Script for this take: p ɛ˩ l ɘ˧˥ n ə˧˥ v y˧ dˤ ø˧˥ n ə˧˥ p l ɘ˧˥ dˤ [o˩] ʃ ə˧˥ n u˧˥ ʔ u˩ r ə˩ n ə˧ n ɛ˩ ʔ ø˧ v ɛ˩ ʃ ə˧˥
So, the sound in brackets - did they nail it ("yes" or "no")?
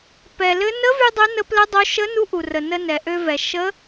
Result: no